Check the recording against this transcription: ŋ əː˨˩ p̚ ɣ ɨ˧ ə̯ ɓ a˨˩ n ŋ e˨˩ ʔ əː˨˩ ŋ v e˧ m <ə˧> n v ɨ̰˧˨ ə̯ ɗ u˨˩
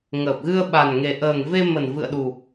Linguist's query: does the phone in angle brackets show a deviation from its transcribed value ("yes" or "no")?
yes